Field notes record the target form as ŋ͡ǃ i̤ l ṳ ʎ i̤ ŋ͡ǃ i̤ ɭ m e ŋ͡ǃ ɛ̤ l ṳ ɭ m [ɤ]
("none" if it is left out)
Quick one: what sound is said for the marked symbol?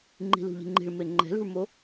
o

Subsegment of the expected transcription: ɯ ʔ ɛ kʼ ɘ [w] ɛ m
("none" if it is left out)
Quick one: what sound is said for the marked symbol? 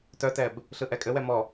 w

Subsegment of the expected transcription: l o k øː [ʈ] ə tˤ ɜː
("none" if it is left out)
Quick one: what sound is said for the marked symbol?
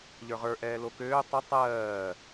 tˤ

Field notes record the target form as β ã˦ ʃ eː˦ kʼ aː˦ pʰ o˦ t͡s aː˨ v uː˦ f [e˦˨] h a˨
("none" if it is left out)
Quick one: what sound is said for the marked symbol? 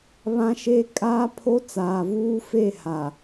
e˦˨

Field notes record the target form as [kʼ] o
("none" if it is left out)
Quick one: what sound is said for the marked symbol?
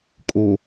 kʼ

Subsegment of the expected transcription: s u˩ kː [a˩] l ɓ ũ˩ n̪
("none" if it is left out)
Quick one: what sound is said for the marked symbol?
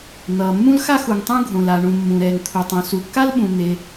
a˥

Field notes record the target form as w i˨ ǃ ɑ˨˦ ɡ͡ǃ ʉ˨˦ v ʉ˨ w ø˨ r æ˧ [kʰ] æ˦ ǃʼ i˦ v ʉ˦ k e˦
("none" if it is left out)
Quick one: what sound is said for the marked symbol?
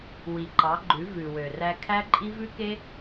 kʰ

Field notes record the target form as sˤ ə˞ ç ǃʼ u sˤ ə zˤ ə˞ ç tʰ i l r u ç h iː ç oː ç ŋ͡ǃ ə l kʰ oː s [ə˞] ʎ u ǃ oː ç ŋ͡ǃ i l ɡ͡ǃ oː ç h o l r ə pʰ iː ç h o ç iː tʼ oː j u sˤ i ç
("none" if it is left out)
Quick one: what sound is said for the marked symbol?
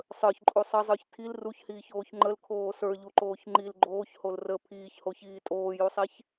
ə˞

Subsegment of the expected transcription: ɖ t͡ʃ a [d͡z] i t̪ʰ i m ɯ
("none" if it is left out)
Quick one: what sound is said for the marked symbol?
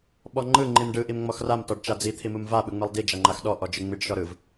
d͡z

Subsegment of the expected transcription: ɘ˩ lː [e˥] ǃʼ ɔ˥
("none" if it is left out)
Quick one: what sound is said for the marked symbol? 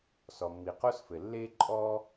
e˥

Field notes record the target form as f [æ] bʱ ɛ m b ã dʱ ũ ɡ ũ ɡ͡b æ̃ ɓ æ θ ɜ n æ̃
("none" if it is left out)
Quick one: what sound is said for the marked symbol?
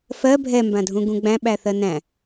ɜ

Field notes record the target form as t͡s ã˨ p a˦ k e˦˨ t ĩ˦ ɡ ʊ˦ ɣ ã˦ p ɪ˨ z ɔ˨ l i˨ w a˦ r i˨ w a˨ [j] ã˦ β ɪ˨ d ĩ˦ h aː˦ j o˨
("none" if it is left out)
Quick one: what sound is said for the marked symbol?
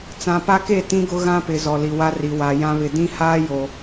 j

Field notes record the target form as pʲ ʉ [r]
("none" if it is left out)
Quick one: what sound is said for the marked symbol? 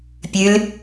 l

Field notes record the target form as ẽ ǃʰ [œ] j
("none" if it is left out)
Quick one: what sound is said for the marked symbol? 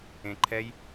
ɛ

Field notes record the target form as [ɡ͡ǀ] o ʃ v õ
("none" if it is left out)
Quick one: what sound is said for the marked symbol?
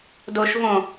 d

